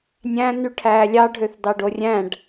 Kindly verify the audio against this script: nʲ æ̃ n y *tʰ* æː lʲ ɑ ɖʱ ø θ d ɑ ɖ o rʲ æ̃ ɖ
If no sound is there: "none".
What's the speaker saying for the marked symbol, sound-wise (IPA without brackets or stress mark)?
ʈʰ